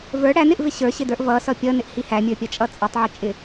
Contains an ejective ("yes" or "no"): yes